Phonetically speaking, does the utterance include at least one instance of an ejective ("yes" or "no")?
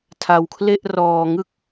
no